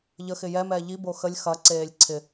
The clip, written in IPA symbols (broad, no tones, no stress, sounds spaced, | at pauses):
ʎ ə x ɪ j ɛ m ɛː ʎ i b o x ə lʲ x ɐ ǀ eː lʲ ǀʰ ɪ